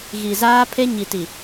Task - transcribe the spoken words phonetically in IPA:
ɣ i˨ z aː˦ pʰ e˦ ɲ i˨ t i˨

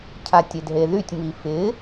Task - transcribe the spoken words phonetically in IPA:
cʰ a tʲ e d ɦ e ð y tʲ m i f ɪ

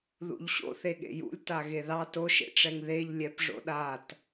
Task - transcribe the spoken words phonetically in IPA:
ð ṵ ʎ ɕ o̰ θ e ɠ ḛ j ṵ lʲ t a ɣ e ð ɑ t o ʃ ḛ ʈ͡ʂ ɛ ŋ ð e ʎ lʲ ɛ p ʐ o̰ ɗ a t

